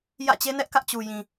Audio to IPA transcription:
j ä̰˦˨ t͡ɕ e˦ n ɛ˦ ʔ k ä˦ ʔ t͡ɕ u˨ j ĩ˨

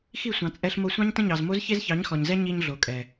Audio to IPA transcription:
x i˦˨ sʷ ɑ̃˨ t͡sʼ ɛ˧ ɬ m o˧ sʷ ɑ̃˦ ɲ t ə̃˦ ɲ ɑ˨ z m o˦ z ç e˦ z ç ɑ˨˦ ɲ x ɔ˨ ɲ z ɛ˦ ɲ i˧ ɲ ɮ o˨ kʼ ɛ˨

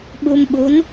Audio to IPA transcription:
ɓ u˧ m ɓ u˧˥ n

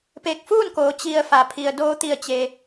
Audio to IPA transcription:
p e˧˩ k̚ f uː˥˨ n k oː˩˧ t͡ɕ i˩ ə̯ f a˩ pʰ i˩ ə̯ d oː˧ t̪ i˧˩ ə̯ t͡ɕ e˩

